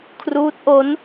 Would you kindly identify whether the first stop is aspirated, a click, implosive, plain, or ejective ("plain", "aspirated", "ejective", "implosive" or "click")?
aspirated